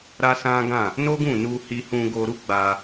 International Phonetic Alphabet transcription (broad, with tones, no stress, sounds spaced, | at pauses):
ɾ a˦ s ã˦ ɡ ã˦˨ | n o˦ ɡ ũ˦˨ n u˧ h i˧ h ũ˧ ɡ o˧ ɾ u˦ ɡ͡b a˧